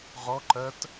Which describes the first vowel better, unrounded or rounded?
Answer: rounded